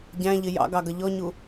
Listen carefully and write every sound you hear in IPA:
ɟ æ̃ ʎ ɪ j ɑ̰ ɡ ɑ ɡ ʌ ʎ ɔ ɲ u

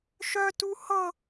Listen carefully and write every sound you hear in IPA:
ʃ œ t u h ɤ

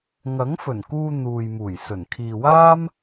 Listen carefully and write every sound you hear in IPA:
ŋ ɐ˨˥ ŋ f ɵ˨˩ n k uː˧ n̪ uː˨ j m uː˨˩ j s ɵ˨˩ n kʰ iː˨ w aː˥ m

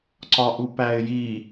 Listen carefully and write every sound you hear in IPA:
ǀ ɒ ʔ u p æ ɪ̯ j i

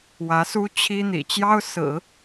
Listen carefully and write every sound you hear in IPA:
w ä˧˥ s u˥ t͡ɕʰ i˥ n̪ ḭ˨˩ t͡ɕ j ɑ˥ ʊ̯ s ɹ̩˨˩˦

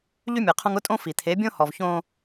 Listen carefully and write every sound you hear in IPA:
ʎ y˦ mʲ e˨ qʰ õ˦ ŋ ʊ˦ tʼ õ˦ f i˨ t̪ʰ e˨˦ bʲ õ˦ h ɔ˨ v ç õ˦

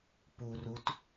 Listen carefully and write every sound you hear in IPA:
p u r u t

